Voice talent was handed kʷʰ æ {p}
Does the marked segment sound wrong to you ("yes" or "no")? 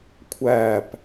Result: no